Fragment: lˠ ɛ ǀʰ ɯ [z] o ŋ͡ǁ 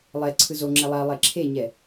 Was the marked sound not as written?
no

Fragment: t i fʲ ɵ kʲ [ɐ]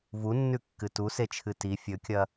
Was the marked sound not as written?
no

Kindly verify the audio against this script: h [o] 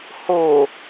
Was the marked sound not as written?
no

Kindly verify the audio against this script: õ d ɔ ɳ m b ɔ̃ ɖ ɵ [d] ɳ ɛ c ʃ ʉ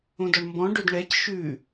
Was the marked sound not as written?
no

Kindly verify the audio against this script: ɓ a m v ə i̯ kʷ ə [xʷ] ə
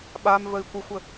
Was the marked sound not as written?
no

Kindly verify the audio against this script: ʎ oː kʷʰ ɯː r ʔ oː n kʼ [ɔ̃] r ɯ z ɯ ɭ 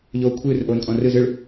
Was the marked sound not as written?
no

